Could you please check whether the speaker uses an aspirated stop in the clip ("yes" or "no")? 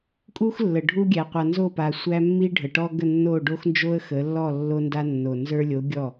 no